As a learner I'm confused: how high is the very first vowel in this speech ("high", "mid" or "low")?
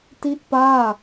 high